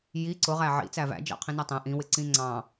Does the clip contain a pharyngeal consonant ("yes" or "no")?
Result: yes